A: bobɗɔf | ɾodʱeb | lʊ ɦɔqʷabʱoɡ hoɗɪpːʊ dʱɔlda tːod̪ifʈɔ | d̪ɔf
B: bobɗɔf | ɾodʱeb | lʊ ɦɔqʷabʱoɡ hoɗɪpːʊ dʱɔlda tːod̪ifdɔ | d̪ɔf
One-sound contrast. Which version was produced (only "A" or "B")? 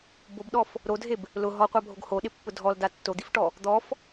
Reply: A